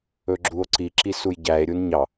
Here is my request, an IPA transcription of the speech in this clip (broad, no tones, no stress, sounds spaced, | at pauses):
ɵ ɡ͡ǁ u o̯ ǀ i ǁ i s u j ɟ æ e̯ ɾʲ u n ɲ ɑ